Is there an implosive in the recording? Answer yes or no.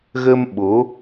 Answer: yes